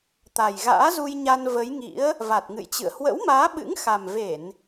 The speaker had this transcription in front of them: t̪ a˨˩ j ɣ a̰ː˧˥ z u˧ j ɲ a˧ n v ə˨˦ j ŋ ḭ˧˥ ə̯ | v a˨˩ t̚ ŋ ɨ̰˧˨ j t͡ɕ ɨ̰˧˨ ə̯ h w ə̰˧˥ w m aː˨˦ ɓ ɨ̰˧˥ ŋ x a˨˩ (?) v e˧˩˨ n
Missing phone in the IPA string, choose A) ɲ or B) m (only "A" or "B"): B